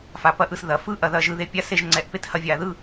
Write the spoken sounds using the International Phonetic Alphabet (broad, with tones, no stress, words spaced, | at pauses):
fa˩˧pɐ˨˥ʔɯ˩˧s ðɐ˩˧fɯ˥˨ ʔɐ˧ðɐ˧ ʒɯ˧ðe˨˥pʲa˥˨ se˥˨ʒ ŋ͡ǀɛ˨˥ʔpe˥˨t hɐ˧vʲa˩˧ ðɯ˥˨